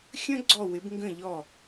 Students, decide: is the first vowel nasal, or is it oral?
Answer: nasal